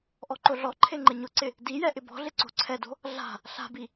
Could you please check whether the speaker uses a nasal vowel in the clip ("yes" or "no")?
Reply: no